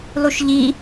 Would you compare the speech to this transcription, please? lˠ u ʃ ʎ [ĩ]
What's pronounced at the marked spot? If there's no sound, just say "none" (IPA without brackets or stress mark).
i